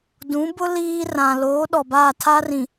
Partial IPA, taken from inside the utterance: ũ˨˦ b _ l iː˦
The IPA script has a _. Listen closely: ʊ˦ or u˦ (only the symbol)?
ʊ˦